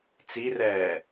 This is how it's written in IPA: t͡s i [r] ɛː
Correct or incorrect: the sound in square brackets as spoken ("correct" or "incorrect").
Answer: correct